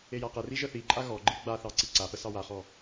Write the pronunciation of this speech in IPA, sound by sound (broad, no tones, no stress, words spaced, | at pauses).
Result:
ejaqəri ʒəθiǃʼa ɣɔɡ͡ǃi ɡ͡ba θɑǀiǀapə sɑwaχɔ